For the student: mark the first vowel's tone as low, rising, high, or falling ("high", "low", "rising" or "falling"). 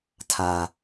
low